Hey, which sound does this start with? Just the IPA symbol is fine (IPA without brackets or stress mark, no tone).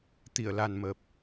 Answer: t̪